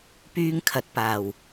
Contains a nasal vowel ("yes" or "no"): no